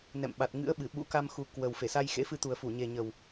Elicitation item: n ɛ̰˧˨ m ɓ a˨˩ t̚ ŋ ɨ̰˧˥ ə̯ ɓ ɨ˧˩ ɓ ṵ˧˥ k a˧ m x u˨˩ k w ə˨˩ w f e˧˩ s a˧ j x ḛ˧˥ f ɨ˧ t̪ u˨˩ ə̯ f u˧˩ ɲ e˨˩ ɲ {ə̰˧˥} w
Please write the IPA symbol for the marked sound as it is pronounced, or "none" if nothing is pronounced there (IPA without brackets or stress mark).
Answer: ə˨˩